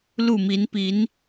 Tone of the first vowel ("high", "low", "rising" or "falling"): falling